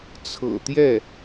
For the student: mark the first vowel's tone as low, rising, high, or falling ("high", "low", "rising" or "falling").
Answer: low